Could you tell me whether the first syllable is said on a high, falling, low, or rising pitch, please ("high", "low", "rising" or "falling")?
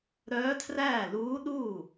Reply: rising